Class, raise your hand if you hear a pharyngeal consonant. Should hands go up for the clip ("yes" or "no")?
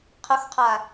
no